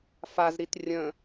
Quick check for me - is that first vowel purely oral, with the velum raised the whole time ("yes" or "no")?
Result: yes